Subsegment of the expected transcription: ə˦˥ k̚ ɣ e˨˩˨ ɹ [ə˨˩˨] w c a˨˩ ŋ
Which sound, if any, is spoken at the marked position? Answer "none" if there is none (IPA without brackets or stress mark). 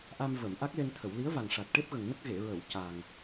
ə˨˩˨